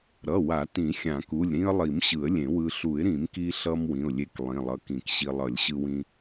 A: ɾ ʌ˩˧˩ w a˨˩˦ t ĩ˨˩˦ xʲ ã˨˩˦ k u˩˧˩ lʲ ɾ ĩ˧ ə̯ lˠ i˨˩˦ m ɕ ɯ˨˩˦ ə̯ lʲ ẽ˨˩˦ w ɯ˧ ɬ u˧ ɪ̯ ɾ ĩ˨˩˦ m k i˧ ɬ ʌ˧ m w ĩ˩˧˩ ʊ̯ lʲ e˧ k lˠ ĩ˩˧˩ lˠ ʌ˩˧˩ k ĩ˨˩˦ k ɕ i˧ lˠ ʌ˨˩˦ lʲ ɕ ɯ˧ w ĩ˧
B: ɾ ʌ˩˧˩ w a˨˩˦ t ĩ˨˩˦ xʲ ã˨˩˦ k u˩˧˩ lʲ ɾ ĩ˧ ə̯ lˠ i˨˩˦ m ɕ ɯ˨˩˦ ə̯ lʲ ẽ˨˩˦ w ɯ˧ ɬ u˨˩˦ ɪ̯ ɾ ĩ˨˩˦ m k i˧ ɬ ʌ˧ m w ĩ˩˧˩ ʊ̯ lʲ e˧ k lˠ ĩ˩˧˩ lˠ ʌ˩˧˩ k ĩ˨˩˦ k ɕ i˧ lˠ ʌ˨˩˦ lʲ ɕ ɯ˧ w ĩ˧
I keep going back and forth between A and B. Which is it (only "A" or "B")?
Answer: B